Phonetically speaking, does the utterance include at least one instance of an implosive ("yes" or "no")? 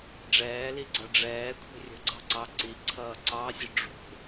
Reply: no